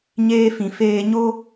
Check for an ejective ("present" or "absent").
absent